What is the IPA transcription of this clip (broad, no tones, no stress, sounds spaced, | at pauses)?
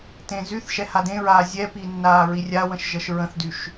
t ẽ z y θ ʃ ɛ h a d ẽ ɹ aː zʲ ɛ p i nː aː ɹ i rʲ a w ə̃ ʃ ʒ ə ʃ ɹ ə̃ θ d y ʃ